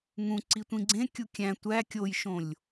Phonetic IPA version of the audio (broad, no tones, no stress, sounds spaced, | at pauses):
ŋ ũ ǀ i tʷ ĩ ɡ͡ǀ ẽ kʲ u kʲ æ̃ tʷ æ kʲ o j ʃ õ lʲ